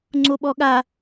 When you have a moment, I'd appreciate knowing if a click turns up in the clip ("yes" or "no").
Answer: yes